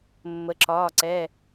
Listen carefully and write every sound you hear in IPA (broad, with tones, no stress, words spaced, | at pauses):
mːə˩˧ǁɒː˩˧˩ǀɛ˩˧˩